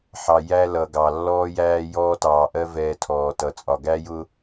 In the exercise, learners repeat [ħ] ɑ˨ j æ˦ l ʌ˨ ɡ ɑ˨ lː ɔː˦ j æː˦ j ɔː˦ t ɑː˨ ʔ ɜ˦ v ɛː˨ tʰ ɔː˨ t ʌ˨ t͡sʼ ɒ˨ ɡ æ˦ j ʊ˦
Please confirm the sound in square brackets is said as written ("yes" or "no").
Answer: yes